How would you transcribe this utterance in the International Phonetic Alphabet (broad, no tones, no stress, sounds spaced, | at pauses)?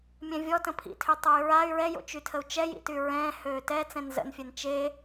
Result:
mʲ ɛ̃ vʲ ɔ t ə̃ pʰ ḭ tʰ ø tˤ o y̯ ɹ a y̯ ɹ ɛ j o̰ t͡ʃ y tʰ ə u̯ t͡ʃ ɛ j ḭ t y ɹ ɛ̃ː h øː t ɛ t͡s ɛ̃ n z ə̰ n fʲ ɛ n t͡ʃ e